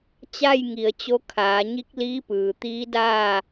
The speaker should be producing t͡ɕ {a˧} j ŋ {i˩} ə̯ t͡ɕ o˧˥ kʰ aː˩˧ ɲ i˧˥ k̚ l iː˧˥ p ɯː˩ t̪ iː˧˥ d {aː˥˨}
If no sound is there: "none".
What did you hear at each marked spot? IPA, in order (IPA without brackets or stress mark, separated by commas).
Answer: a˥˨, i˩, aː˥˨